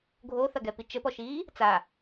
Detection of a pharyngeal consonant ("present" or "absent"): absent